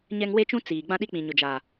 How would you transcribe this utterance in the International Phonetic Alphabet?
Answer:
ɲɛ˦ŋ we˦t͡ʃũ˦ t͡siː˨ ɡ͡bã˦ɗi˦k͡pĩ˨ ɲʊ˨d͡ʒa˨

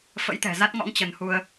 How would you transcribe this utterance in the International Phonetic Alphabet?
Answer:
fə̰˧˥jt̪ɛ̤˨˩za˦˥t̚ŋɔ̰˧˥ŋ t͡ɕə˨˦nhu˧ə̯

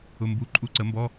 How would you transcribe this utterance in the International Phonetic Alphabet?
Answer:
ʊ˧˥˧ mbu˧˥˧ ǃʼu˧˥˧ǀə˨˥mbɔ˧˥˧

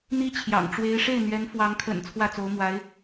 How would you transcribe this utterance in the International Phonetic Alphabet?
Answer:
n̪i˥t͡ɕʰjɑ̰˨˩ŋ ʈ͡ʂwe˧˥ɪ̯ʂe˥˩ɪ̯ n̪ɥɛ˧˥nfwɑ˧˥ŋkʰə̰˨˩n t͡sʰwä˥˩t͡so˧˥ʊ̯mwa˧˥ɪ̯

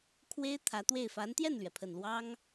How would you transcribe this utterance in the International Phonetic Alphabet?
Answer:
kʰwe˥ɪ̯ t̪ʰä˧˥t̪we˥˩ɪ̯ fa˧˥nt̪jɛ˥˩nlɥɛ˩pʰə˨˩n lwɑ˥ŋ

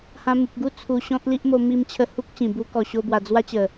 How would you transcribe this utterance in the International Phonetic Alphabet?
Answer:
hã˧mu˨p̚ɡu˦ t͡sʰu˨˩ɕɔ̃˦t̚li˦ʔmo˧ mi˧m t͡ɕʰə˧hu˦k̚ ɕĩ˨˩bu˦kɔ˧ɕo˦ bwa˧ d͡zwa˦t͡ɕə˨˩

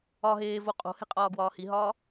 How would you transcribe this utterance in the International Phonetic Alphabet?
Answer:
ɒ ɦeːvo qʼo̤he̤ qʼɒːɡwɒːhiɦɒː

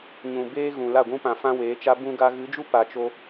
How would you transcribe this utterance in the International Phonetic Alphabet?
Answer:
ɲũ˨ beː˦ɣũ˨ la˦˨ɡʷũ˦pã˧ fã˦weː˨˦t͡ʃa˦ bũ˧ɡa˧ɣɨ˨˦d͡ʒu˦ pa˧t͡ʃo˦

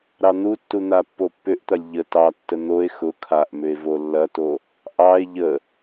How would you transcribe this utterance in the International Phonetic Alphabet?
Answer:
ɾɑn̪utːu n̪apːopːʏʔt̪ɐlʲ ʎə tɑtːə n̪oe̯ xʊ kʰaʔmʏe̯ volːɐto | ʔɑe̯ ʎə

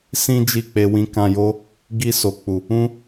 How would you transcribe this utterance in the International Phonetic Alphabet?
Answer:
sĩ˦d͡ʒi˦˨k͡pe˧ wĩ˧kã˧jo˦ | ɡi˧so˨k͡pu˨ | ũ˦

